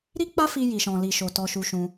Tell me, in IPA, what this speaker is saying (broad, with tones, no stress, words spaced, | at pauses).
ɾi˦k͡pa˦fi˧ ji˨ʃɔ̃˨ li˧ʃo˨ tɔ˧ʃu˧ʃũ˧